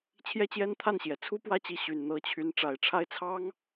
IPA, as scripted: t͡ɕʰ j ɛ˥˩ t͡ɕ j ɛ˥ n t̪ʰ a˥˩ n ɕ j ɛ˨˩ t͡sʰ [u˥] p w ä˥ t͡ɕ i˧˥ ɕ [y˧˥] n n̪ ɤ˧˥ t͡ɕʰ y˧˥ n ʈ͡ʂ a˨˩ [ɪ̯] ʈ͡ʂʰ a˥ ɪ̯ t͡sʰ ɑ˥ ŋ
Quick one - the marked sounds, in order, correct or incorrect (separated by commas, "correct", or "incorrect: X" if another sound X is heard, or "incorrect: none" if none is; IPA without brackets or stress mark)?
correct, incorrect: y˨˩, correct